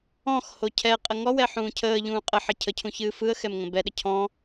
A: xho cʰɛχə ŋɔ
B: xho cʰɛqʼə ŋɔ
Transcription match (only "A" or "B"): B